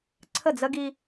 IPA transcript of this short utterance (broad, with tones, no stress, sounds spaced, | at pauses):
ǀʰ ə˦˨ d͡z ə˦ ɡ i˦